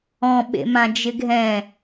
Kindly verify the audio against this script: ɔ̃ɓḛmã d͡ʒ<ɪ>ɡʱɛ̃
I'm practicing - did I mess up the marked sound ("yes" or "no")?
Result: no